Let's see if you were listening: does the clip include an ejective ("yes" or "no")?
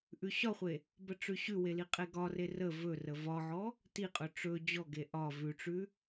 yes